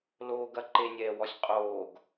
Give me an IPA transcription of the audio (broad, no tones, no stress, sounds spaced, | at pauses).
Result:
l oː ɡ ɐ ǃ e nʲ ɛː w ɔ sʲ qʼ oː ɡ